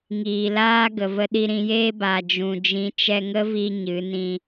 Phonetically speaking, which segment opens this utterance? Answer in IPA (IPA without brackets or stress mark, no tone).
ŋ